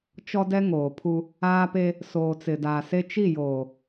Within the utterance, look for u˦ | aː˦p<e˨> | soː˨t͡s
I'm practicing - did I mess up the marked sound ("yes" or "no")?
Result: yes